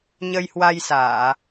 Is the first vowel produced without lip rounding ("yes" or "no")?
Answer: yes